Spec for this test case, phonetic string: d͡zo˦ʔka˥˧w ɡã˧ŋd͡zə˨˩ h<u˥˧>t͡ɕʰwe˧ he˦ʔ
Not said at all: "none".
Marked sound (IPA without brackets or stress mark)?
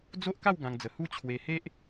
u˥˧